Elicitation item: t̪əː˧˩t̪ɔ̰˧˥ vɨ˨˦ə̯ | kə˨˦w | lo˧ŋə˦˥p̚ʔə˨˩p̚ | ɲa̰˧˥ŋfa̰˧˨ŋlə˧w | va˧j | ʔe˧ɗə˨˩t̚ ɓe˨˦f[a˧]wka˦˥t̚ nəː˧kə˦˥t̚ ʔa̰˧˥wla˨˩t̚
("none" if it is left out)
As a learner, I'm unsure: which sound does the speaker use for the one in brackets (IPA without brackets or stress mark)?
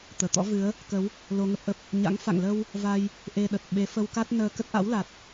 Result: ə˧